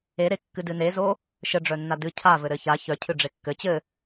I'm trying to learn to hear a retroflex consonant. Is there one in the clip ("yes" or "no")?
yes